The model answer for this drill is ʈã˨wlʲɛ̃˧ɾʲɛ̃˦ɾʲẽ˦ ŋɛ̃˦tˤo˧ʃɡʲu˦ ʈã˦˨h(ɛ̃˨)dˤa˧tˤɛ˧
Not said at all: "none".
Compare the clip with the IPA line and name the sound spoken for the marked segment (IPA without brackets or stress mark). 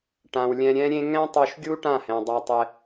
ɛ̃˨